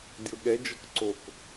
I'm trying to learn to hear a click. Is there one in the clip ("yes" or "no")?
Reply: yes